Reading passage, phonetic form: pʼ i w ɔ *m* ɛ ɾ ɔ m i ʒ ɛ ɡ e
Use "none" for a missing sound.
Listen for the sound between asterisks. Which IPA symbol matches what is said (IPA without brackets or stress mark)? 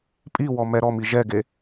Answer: m